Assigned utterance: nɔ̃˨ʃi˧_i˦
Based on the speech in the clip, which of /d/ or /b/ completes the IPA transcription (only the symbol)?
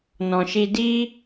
d